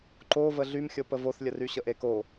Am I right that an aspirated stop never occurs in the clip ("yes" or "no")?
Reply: yes